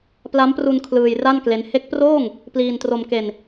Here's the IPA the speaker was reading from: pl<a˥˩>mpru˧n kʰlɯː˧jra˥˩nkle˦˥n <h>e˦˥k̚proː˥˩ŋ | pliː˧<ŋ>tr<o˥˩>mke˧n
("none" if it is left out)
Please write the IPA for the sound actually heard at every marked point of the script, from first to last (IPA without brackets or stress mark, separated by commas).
a˦˥, h, n, o˧